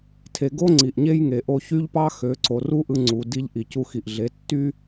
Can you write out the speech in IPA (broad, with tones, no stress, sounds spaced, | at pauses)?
tʰ e˧ ɡ o˦ ŋ͡ǀ i˨ ʔ ɲ e˦ j ŋ e˨ ʔ o˧ ç y˦ ʎ p ɑ˦ x ø˨˦ ǀ o˨ r u˦ ʔ ɯ˧ ŋ͡ǀ u˨ d i˧ ʎ ʔ i˨ c u˧ x i˨ ʔ ɮ e˨˦ tː y˦